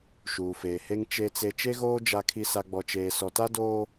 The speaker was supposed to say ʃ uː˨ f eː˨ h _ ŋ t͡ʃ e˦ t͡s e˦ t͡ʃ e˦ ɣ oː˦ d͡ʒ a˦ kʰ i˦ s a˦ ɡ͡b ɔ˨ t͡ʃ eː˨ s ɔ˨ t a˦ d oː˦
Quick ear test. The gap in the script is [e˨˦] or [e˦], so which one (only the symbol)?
e˦